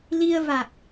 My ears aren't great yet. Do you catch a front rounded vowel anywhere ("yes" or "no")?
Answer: no